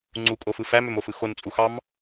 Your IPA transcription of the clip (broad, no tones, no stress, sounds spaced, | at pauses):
ŋ͡ǀ u kʼ o f ɯ f æ m ø m o f ɯ x o n t͡sʼ u x ɑ m